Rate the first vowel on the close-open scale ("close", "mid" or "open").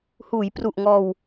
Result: close